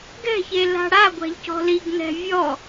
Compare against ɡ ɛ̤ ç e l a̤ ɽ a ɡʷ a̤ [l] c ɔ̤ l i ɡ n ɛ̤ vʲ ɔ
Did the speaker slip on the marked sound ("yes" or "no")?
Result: yes